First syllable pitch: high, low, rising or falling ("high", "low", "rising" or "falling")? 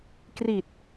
low